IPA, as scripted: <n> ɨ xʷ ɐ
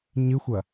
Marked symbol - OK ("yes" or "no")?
no